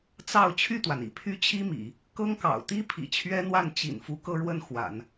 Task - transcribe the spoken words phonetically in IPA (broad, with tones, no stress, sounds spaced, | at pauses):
t͡s ɑ˥˧ ʊ̯ t͡ɕʰ y˥˩ t̪ w a˩ n ḭ˨˩ pʰ y˥ t͡ɕʰ i˥ m ḭ˨˩˦ | k ɤ˥ ŋ k ɑ̰˨˩ ʊ̯ t̪ i˥ pʰ ḭ˨˩ t͡ɕʰ ɥ ɛ˥ n̪ w a˥˩ n t͡ɕ ḭ˨˩ n f u˧˥ k ɤ˥˧ ɻ w ə˥˩ n x w a̰˨˩˦ n